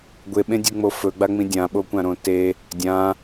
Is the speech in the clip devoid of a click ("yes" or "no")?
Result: yes